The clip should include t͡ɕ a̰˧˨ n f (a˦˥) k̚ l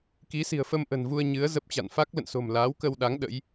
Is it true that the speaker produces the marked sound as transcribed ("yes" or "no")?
yes